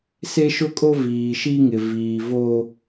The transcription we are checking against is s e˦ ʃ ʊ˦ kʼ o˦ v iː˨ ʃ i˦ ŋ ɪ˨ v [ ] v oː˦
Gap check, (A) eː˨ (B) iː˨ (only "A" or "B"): B